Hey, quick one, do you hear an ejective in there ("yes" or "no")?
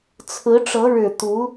no